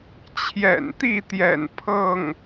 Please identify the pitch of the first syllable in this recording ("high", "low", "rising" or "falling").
low